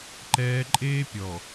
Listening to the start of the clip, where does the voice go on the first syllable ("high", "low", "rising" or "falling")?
high